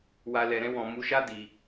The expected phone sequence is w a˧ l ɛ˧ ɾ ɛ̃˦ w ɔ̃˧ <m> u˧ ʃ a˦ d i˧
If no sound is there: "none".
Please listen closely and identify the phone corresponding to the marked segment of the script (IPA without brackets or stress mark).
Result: m